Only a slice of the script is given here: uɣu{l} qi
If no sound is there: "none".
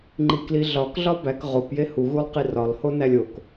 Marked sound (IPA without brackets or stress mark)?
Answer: lˠ